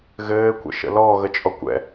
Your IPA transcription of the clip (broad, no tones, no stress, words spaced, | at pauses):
ɣɘː kʷə̰ʃə̰lɔ ɣət͡ʃʼɔkʷɛ̰